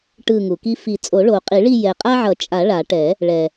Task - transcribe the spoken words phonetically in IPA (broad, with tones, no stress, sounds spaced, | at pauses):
ʈ ɯ˦˨ ŋ u˨ k i˦ f i˨˩˦ t͡sʼ o˨˩˦ ɭ o˨˩˦ qʼ i˨˩˦ ɭ i˦˨ j ɛ˨ qʼ a˦ ʕ ʌ˨˩˦ t͡ʃʼ a˨˩˦ ɭ a˨˩˦ ʈ ɛ˨˩˦ | ɭ ɛ˨